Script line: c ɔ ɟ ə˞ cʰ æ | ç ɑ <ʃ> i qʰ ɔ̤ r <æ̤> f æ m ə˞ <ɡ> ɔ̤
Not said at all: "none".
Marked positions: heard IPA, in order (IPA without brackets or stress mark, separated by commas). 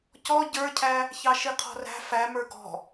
ʃ, æ̤, ɡ